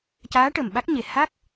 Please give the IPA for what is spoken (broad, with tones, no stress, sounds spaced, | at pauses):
c aː˧˥ ʈ ə˨˩ m ɓ a˦˥ k̚ ɲ e˨˩ h a˦˥ k̚